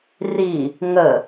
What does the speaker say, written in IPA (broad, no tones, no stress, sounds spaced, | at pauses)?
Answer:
r i | ŋ ə